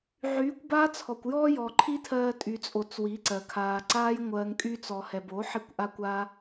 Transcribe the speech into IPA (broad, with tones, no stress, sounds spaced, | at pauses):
ʕ yː˨˦ kʷ b aː˦ t͡sʰ ɔ˨ kʷ j ɔː˦ j ɔ˨ ǃʰ i˦ tʰ ɜː˧ tʼ y˧ t͡sʼ o˧ t͡s w i˨˦ ǀ ɜ˨ kʰ aː˨ ǀ aː˦ j ŋʷ ɜː˧ ŋ kʼ yː˦ t͡s ɔ˨ h ɛ˨ b o˨˦ ħ i˧ kʷ ʔ a˦ kʷ aː˦